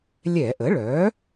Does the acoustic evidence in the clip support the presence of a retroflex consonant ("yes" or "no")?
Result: yes